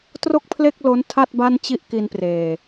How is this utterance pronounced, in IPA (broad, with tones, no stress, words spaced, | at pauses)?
tro˥˩k̚pʰle˥˩k̚ lo˦˥ntʰa˥˩t̚ ba˥˩nt͡ɕi˥˩ʔki˧npreː˨˩